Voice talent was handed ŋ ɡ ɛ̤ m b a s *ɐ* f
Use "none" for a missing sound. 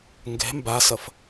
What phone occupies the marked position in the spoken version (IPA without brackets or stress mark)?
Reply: ɐ